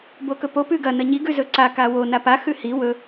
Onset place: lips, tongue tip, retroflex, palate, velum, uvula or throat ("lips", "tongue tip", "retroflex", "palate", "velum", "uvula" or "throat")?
lips